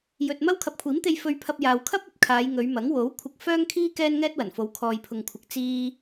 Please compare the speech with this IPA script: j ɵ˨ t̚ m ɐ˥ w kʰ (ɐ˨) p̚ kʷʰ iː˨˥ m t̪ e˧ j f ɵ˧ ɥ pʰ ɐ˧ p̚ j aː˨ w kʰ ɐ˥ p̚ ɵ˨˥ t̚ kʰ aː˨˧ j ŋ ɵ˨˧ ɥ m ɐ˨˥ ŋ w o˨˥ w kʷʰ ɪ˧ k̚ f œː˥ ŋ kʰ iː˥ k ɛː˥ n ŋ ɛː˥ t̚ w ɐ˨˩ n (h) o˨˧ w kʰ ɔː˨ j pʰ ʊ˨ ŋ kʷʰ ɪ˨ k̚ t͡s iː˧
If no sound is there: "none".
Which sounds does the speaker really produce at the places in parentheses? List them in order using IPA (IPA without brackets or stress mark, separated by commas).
ɐ˨, f